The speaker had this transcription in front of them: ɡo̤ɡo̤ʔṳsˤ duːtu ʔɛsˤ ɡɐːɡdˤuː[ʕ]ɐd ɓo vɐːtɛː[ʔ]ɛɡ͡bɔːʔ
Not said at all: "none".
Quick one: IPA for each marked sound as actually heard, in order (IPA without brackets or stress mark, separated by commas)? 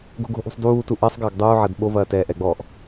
ʕ, ʔ